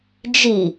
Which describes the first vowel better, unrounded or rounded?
unrounded